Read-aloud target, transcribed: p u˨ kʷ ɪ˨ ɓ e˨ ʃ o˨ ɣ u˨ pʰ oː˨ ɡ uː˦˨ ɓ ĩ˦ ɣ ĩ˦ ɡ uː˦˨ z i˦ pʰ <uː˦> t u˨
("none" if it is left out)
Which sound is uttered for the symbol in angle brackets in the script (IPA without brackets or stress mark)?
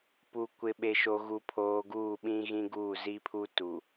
u˦